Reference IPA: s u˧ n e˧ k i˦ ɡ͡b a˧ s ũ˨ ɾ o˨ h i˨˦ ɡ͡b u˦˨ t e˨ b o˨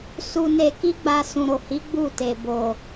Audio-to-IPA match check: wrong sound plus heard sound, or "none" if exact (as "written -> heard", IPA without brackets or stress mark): none